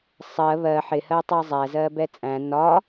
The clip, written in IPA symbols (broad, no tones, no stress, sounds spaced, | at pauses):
sˤ ɜ β ɜ ħ ɪ h ɜ tˤ ʌ zˤ æ z ɜ b ɛ t͡sʼ æ̃ n ɒ